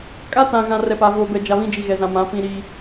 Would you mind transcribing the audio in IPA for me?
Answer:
kʼa˦tã˨ɣã˨ rɛ˨pa˨voː˨bɛ˨ d͡ʒa˨βĩ˦ d͡ʒi˨ɣɛ˨zã˨ mã˨˦ pĩ˦ɾi˦

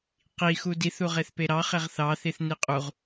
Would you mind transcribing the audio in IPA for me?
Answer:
qi xudiθu ʁeθpeɾɑχeʁ θɑθiθ niqʼuʁ

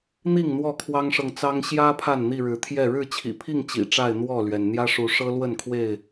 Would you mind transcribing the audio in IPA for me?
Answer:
n̪i˥˨ŋ n̪wɔ˥˨kʰwɑ˦ŋʂɤ˨ŋt͡sɑ˦ŋ ɕjä˦ pʰa˥˨nn̪i˥˨ɻɻ̩˨˦t̪ʰjɛ˥˨ ɻɻ̩˥˨t͡ɕʰḭ˨˩pʰi˥˨ŋ t͡ɕḭ˨˩ʈ͡ʂa˥˨ɪ̯ n̪wɔ˥˨lɥɛ˩n n̪jä˦ʂu˨˦ʂɤ˦lwə˥˨n kʰwe˥˨ɪ̯

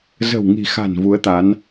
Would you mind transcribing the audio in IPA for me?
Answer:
zə̤˨˩wŋi̤˨˩xa̤˨˩n vu˨˦ə̯t̪a˨˦n

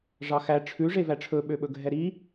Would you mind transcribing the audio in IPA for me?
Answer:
ʐɑxæ ʈ͡ʂʰʉ ʐevæʈ͡ʂʰɵ ɓøɓɵɡʱɛɾi

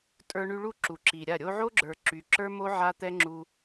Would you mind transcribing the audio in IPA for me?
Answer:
tʼə˞˧ɳy˧ɭu˦˨ ǁu˨ǁi˨ɾʲa˦˨ ɾʲo˧ʕo˦ɡ͡ǁə˞˨ ǁy˨ǁə˞˦mo˦ ʕa˦t̪ɛ˦ ŋ͡ǁu˧

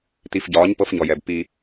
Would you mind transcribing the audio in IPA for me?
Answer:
ti˨fɟɒː˨˦ɲ pɤ˦fɲɔ˨jɛ˨b pi˦

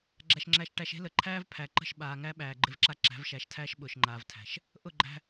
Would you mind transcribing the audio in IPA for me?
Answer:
ɡ͡ǁæ˨ʃŋ͡ǁæ˨ʃ ʈæ˨ʃ e̤˦lə˨ǃʰæː˦v pʰæ˨ǃə̤˦˨ʃ ɓaː˨ŋæ˦ɓæː˨ ɡ͡ǃɪ˦vǁa˦ ǁæ̤˨˦vʃæ˨˦ʃtʰæː˦ʃ ɓʊː˨ʃŋ͡ǃaː˨vtʰæ̤˨ʃ | ʔʊ˦˨ɡ͡ǃæ̤˦

